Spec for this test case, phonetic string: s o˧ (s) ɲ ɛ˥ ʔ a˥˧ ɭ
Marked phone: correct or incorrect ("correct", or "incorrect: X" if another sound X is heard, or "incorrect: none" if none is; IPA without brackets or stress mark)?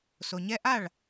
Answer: incorrect: none